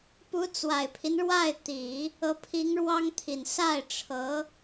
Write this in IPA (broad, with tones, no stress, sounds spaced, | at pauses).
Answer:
p u˧˥ t͡s w a˨˩ ɪ̯ pʰ i˦ n ɻ w a˥˩ ɪ̯ t̪ i˨˩˦ | ɤ˧˥ pʰ i˧˥ ŋ ɻ w ɑ˥ ŋ t̪ʰ i˨˩ n s a˥˩ ɪ̯ ʈ͡ʂʰ ɤ˧˥